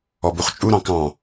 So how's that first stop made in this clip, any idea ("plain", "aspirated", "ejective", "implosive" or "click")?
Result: plain